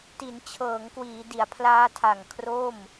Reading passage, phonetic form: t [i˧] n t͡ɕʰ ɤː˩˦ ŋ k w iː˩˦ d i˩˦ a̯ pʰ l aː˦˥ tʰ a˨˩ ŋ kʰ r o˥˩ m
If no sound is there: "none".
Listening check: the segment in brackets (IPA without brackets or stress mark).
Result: i˩˦